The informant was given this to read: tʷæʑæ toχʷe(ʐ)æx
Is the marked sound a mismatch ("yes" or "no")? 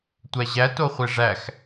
no